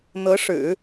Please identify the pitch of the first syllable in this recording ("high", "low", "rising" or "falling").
rising